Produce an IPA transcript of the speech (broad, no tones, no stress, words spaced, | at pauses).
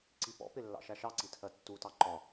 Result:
ǀipɔ̰pɪ lːɑ̰ʃæʃɑǀi tʰɜtːutɑ ǃɒ